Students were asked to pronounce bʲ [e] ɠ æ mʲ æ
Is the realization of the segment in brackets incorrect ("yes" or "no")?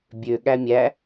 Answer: yes